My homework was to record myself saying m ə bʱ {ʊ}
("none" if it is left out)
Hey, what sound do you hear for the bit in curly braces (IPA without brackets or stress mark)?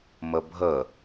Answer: ə